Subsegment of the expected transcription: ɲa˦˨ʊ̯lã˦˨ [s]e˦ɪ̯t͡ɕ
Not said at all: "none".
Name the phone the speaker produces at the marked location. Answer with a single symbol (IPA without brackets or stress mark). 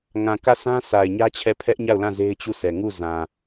z